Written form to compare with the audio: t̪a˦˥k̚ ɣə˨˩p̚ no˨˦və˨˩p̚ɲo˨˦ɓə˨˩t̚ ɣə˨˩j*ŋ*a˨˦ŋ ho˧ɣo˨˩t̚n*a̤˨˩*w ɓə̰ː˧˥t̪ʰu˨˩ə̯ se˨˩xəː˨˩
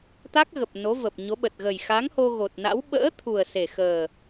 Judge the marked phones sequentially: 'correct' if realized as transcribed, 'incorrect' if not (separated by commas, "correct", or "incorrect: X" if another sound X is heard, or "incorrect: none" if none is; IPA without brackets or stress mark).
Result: incorrect: x, incorrect: a̰˧˥